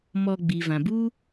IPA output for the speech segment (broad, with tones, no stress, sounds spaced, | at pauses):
m ɔ˧ ɡ͡b i˨ v ã˨ b u˦